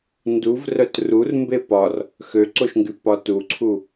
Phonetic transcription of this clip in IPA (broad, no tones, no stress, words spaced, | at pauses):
nduvrœt rur mbepɒr | xøǀoʃŋɡy pɒtuǀʰu